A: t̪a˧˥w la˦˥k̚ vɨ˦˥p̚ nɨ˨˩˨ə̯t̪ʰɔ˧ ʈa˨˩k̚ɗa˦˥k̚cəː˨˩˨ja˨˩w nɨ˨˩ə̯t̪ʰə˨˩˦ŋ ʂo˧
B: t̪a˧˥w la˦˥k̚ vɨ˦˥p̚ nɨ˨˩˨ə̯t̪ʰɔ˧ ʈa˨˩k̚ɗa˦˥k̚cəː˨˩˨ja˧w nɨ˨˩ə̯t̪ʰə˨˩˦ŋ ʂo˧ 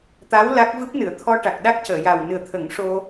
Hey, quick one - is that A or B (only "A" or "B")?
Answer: A